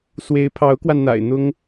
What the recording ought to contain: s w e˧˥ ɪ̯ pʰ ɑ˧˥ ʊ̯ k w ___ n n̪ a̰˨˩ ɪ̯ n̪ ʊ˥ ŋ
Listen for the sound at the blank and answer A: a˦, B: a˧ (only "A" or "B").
B